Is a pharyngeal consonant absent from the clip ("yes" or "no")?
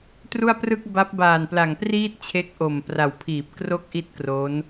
yes